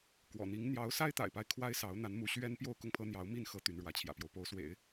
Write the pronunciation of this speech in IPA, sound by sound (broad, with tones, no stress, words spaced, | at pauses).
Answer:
kwɔ̰˨˩n̪i˧˥ŋ n̪jɑ˧˥ʊ̯sa˥ɪ̯t̪a̰˨˩ɪ̯pa˦ɪ̯ kʰwa˥ɪ̯sɑ˧˥ʊ̯n̪a˧˥nmu˧˥ ɕɥɛ˥n pjo˥˧ʊ̯kʊ˥˩ŋpʰɤ˥n̪jɑ˧˥ʊ̯ mi˥˩nxɤ˧˥ t̪y˧˥nɻwä˧˥t͡ɕʰjä̰˨˩pjo˦ʊ̯ po˧˥ʊ̯swḛ˨˩˦ɪ̯